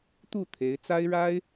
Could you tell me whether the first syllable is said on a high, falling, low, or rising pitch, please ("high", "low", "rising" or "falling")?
falling